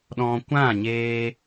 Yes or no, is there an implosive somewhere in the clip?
yes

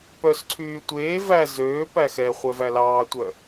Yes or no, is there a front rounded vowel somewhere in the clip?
yes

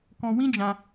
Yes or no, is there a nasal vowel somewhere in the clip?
yes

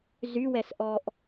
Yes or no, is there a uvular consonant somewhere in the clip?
no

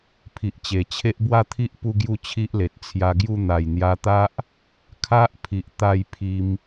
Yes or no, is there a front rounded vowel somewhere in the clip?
no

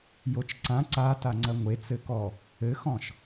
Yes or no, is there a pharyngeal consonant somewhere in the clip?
no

